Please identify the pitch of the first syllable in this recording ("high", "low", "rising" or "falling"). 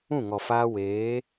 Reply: falling